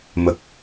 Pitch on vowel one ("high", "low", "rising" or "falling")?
low